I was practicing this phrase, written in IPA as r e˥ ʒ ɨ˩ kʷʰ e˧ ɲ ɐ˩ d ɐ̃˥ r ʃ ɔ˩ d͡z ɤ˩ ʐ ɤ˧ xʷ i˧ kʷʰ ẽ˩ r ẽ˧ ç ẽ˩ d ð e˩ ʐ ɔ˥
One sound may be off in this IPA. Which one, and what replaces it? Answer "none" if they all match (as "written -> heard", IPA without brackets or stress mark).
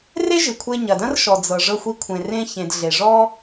ð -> ɮ